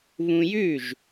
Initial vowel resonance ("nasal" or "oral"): nasal